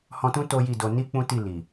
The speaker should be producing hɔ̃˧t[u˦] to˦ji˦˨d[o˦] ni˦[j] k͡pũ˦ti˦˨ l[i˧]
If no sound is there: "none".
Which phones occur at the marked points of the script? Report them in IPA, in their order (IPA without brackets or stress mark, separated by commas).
ũ˦, o˧, none, i˨